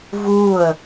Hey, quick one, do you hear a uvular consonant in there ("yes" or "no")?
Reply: no